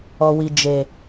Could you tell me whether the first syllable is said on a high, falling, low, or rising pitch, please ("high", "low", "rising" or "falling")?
low